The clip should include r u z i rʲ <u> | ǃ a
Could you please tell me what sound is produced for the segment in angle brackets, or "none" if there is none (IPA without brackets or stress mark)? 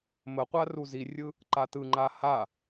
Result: ɯ